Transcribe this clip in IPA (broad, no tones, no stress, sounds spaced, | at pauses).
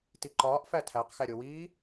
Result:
t i ǃ ɒː ʔ f æ tʰ æ q x æ ɾʲ o w iː